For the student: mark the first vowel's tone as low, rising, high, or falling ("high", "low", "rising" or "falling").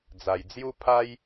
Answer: low